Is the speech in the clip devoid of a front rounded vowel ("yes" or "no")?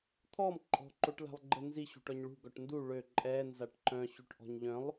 no